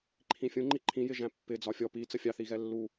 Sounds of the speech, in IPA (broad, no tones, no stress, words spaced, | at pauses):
ǃʰĩfʲũŋ͡ǃi ǃʰĩjɪ ʒæ̃pːɪ d͡zɒfʲɔ pi t͡səfʲɑθiɣɛ lːu